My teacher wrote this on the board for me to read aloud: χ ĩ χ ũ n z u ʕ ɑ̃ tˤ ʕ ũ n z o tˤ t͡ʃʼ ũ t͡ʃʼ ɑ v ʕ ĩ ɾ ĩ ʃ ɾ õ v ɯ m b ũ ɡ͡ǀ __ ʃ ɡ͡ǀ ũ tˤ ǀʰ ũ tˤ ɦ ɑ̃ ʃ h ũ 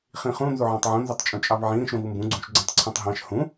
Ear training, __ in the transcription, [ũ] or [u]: ũ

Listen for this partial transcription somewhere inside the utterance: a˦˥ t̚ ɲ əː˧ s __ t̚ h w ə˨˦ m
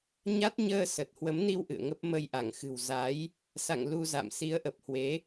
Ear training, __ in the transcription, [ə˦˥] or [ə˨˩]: ə˨˩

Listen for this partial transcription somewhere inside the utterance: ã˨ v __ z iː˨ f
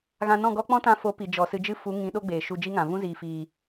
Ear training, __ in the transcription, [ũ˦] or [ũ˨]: ũ˦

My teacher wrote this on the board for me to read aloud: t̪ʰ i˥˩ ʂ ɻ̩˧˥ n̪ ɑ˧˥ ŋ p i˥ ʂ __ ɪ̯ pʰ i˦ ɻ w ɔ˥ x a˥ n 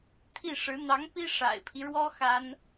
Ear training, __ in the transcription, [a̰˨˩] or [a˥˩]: a̰˨˩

